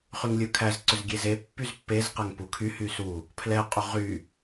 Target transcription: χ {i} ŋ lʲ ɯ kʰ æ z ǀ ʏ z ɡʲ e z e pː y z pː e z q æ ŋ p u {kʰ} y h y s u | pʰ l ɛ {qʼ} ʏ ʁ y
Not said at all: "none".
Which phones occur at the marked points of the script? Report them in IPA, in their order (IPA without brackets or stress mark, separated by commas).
y, kʰ, qʼ